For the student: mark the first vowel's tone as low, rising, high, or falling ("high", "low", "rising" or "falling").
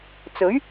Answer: rising